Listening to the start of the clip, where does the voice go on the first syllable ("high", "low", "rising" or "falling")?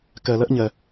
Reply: low